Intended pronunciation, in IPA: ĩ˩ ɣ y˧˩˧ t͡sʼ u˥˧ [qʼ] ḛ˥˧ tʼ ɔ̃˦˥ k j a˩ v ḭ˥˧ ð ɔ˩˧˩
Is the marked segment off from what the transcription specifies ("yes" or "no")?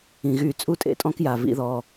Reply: yes